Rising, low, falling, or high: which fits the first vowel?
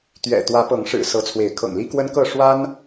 low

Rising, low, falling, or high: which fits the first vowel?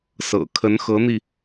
low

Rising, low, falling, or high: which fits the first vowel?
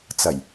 low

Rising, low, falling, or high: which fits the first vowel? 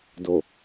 low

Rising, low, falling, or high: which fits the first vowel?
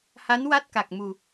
rising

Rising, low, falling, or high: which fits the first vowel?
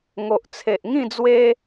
low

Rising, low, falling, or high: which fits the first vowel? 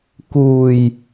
low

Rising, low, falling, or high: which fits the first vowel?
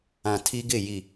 low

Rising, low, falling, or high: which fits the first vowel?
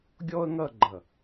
high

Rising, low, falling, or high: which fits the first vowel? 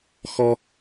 low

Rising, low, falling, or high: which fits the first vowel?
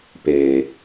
low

